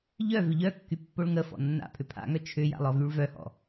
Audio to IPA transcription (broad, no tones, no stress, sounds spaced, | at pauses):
ʎ œ v ʏ ʎ œ kː y pː o ɭ ŋ ə f ɔ̰ nː a̰ pʰ ʏ pʰ a̰ ŋ œ t͡ʃʰ ʏ j a̰ lˠ ɔ v y ɭ v œ h ɔ̰